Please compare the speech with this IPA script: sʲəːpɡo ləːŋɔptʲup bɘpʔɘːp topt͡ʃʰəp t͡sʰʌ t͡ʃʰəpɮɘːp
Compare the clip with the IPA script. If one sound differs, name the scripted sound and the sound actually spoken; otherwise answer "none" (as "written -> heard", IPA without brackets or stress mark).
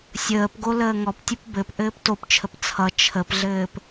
none